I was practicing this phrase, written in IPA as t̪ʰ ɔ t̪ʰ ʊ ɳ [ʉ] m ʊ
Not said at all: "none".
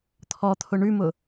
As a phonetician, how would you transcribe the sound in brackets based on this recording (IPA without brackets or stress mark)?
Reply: ʉ